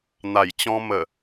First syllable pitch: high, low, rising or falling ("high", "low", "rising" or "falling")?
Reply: low